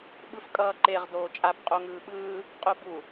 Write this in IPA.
ɓɯfkʼʌːǃeʁ doːt͡ʃʼap qʼoŋɯːɓɯː | qʼobu

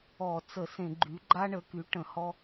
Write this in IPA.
ɔ˧˩˧t͡sə˧˩˧ sẽ˧˩˧ɡ͡ǃy˩˥ ɡ͡ǃa˦ɳə˩˥ky˩˥ ʈə̃˧˩˧ hɔ˦

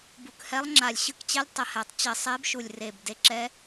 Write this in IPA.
bu˨˩khɛ˧˥lˠŋ͡ǁa˨˩lʲɕɯ˧˥k t͡ɕɛ˧˥lʲ tˤə˨˩hɛ˧˩˧tˤ t͡ɕɪ˧˩˧ sˤe˧˥b ʃu˨˩lʲre˨˩b de˧˥ǁɛ˧˥

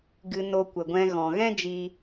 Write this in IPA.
ɡɨ˧ no˧kʷə˨ɡʷɛ̃˧ ɣɔ̃˨ɣɛ̃˦ d͡ʒi˦

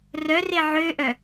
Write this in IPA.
rœre ʕøʔœ

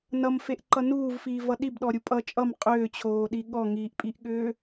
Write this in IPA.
nʌmfeʔǃʌ nuːvfiːvʌ ɗibɗɔɾʲu pʼʌ t͡ʃʼʌm qʼʏːt͡ɕʰoːɗi ɠɔŋiːʔpʼiʔɠʏː

